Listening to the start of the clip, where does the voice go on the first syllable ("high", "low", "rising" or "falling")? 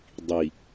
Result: low